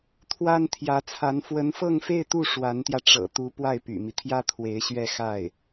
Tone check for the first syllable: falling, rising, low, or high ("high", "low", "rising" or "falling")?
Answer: high